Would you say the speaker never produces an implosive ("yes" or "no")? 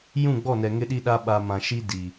no